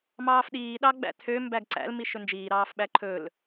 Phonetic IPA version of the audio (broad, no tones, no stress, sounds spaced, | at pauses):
m ɑː f ɗ iː ɗ ɑ ɡ͡b æ̰ tʰ ø m b æ ɡ ǀ æ̰ l m i ʃ ɵ n d͡ʒ iː ɾ ɑː f ɓ æ ǃʰ ɵ l